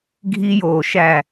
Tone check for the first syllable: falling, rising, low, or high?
high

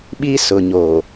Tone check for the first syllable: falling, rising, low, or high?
high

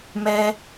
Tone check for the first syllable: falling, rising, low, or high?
high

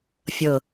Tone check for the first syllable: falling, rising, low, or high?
low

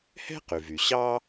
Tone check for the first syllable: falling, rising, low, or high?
high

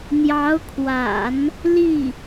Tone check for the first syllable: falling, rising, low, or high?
rising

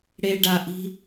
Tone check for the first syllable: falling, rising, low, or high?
low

